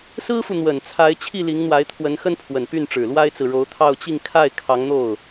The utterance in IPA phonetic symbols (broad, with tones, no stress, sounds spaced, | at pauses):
s ɹ̩˥ f u˨ n̪ w ə˨˩ n t͡sʰ a˧˥ ɪ̯ t͡ɕʰ i˥˩ l i˧˥ ŋ n̪ w a˧˥ ɪ̯ t̪ʰ w ə˧˥ n x ə˥ n pʰ w ə˨˩ n p y˥˩ n ʈ͡ʂ ɻ̩˨˩ l w a˥ ɪ̯ t͡s ɹ̩˨ ɻ o˧˥ ʊ̯ t̪ʰ ɑ˥˧ ʊ̯ t͡ɕ i˥˧ ŋ kʰ a˥˩ ɪ̯ kʰ ɑ˧˥ ŋ n̪ o˥˩ ʊ̯